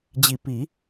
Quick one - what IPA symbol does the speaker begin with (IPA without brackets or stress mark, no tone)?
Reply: d͡ʑ